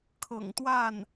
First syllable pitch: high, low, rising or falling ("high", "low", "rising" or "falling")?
low